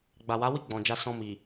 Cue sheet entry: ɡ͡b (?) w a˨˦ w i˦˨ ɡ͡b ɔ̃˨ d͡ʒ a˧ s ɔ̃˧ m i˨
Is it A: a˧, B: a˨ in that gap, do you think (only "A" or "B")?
B